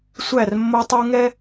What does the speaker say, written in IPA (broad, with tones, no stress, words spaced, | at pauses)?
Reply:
sʷæ˦˨rmːo˦tˤo˦ŋɛ˦